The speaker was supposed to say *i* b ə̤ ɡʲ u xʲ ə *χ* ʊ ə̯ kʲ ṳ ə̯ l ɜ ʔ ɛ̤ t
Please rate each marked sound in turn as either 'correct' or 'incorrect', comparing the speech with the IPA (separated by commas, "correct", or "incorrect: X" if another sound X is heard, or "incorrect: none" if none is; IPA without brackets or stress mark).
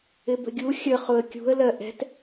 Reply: incorrect: ɪ, correct